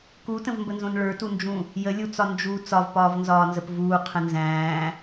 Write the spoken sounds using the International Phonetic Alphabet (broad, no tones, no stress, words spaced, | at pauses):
kutə̃vmbənzõn ɭə˞tund͡ʒũ | jəlʲut͡sɒ nd͡ʒu t͡sɒvpɒːvnzɒːnzəp vuːqʰə̃ nzæ̃ː